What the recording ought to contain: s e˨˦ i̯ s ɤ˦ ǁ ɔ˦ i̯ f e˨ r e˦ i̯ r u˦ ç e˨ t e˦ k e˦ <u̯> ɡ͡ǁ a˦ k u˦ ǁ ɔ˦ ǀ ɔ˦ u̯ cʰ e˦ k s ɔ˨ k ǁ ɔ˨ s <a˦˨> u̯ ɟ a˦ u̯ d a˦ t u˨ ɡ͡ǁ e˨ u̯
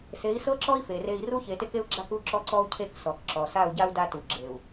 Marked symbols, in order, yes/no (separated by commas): yes, yes